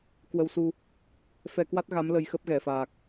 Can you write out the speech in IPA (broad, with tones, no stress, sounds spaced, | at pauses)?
k w ə˧ w s u˧ | f ɛ˧ k w a˦˥ t̚ ɣ a˨˦ m l ə˧ j x ə˦˥ p̚ ɣ ɛ˧˩ f aː˨˩ k̚